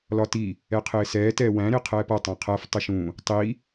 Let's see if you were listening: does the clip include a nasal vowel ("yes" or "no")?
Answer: yes